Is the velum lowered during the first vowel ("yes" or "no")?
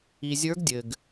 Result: no